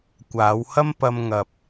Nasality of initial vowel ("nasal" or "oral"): oral